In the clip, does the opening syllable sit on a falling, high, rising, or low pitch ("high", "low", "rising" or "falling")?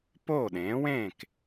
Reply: falling